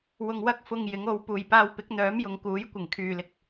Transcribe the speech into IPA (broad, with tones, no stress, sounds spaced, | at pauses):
w ʊ˧ ŋ w ɐ˥ k̚ f ʊ˧ ŋ j ɪ˨˥ ŋ o˨˧ w p uː˨ j p aː˧ w p ɪ˨˥ k̚ n̪ œː˨˥ m j ʊ˨˧ ŋ k uː˨˥ j kʷ ɪ˨˩ ŋ kʰ yː˨ l ɪ˨ k̚